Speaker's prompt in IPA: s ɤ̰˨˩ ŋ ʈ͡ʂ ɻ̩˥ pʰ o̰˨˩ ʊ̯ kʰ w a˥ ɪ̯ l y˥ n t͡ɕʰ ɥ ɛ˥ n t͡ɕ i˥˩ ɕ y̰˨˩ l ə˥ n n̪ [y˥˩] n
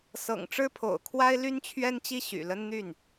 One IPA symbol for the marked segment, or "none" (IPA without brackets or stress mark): y˥˩